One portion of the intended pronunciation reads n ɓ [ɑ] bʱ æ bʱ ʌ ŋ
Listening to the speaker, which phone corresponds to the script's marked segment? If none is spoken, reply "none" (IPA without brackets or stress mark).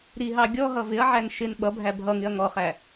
ʌ